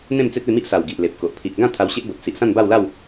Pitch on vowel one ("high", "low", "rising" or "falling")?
falling